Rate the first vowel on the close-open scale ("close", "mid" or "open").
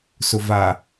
close